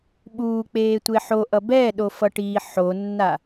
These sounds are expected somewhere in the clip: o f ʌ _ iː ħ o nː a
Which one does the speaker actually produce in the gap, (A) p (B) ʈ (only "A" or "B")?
B